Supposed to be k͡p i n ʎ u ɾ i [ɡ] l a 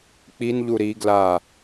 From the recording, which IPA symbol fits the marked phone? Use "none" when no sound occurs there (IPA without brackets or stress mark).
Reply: ɡ